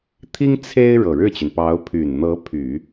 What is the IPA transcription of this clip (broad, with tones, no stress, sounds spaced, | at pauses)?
t̪ʰ i˥ ŋ t͡sʰ e˥ ɪ̯ ɻ ɤ˨˩ ɻ ɻ̩˥˩ t͡ɕ y˩ n p ɑ˧˥ ʊ̯ pʰ y˨˩ n n̪ ɤ˧˥ pʰ y˨˩˦